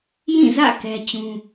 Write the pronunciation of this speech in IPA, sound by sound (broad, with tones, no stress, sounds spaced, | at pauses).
j ĩ˦˨ z ä̰˦˨ k ɛ˦ t͡ɕ ũ˦